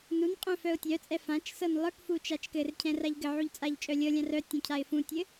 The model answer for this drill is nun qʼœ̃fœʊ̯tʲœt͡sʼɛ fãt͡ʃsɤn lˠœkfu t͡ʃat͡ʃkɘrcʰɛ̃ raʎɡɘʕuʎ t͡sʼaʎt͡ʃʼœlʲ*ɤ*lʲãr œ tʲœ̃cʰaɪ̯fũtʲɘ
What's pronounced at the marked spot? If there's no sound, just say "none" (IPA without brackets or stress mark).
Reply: ɤ